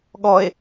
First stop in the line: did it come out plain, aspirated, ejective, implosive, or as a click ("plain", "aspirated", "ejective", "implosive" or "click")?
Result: implosive